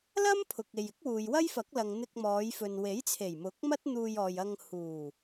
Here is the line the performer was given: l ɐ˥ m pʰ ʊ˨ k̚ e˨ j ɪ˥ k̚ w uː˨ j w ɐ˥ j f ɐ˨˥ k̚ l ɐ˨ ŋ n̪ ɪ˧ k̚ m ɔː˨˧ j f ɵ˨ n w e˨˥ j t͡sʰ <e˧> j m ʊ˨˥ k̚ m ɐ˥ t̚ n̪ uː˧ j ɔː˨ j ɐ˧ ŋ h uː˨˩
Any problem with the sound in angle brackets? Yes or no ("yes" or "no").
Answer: yes